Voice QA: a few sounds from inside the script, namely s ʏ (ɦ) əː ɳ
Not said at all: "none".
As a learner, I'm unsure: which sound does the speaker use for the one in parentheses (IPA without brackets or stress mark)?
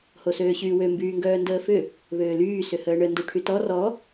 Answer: h